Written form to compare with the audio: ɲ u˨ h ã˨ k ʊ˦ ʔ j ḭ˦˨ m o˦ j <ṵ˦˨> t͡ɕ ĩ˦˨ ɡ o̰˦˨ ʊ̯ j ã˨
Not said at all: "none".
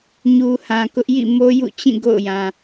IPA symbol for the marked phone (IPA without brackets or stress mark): ṵ˦˨